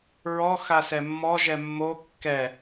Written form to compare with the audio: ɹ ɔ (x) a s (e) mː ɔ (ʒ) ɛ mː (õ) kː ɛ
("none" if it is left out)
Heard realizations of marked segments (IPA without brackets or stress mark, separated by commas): x, ɛ, ʒ, o